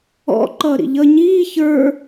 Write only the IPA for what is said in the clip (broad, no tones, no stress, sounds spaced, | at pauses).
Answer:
ɔ̰ ǃ ʌː ɾ ḭ ʎ ʌ ɲ iː ç ə˞